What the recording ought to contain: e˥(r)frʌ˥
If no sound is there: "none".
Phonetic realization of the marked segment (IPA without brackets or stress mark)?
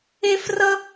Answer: none